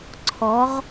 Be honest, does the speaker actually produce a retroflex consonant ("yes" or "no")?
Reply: no